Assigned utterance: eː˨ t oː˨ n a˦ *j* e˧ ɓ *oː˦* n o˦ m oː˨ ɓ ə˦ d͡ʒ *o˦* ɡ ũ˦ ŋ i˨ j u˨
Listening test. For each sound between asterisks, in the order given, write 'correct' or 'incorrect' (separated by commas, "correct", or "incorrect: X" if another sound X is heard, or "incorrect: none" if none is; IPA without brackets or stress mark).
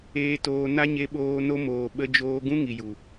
incorrect: ɲ, incorrect: oː˧, incorrect: oː˦